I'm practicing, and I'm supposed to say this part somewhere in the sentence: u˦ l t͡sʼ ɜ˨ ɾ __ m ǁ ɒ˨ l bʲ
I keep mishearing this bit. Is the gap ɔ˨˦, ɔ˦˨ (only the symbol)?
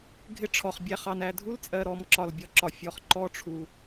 ɔ˨˦